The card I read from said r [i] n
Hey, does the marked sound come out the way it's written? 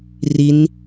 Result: yes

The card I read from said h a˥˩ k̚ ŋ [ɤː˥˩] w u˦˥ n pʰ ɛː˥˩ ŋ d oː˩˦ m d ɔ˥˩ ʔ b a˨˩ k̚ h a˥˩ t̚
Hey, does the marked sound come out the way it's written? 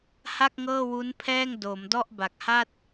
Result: yes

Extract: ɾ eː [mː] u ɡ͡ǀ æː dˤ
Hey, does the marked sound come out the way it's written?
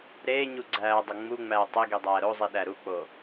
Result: no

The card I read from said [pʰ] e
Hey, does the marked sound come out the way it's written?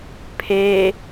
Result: yes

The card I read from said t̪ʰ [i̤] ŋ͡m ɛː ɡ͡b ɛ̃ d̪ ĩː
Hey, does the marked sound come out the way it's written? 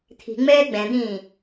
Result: yes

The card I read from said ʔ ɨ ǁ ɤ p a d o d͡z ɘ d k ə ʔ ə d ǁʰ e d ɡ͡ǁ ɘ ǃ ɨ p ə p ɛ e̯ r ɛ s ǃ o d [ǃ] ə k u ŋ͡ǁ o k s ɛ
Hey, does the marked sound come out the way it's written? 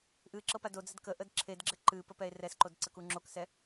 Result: no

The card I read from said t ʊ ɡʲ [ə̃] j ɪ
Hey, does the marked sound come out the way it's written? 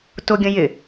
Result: yes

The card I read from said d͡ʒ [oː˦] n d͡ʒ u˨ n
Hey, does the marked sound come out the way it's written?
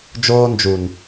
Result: yes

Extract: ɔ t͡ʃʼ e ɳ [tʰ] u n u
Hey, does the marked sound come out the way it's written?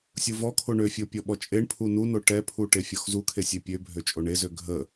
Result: no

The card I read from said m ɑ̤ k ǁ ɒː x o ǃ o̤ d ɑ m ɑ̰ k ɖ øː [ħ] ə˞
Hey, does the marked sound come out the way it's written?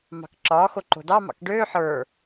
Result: yes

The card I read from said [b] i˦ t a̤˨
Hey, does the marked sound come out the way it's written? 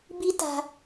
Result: yes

